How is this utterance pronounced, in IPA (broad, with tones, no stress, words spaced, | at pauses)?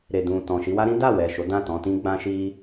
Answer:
ɾe˨dũ˨ tɔ̃˨ʃi˧wa˦ ɾĩ˦da˦˨wɛ˨ ʃo˨˦dã˦˨tɔ̃˧tĩ˦ ɡ͡bã˦ʃi˦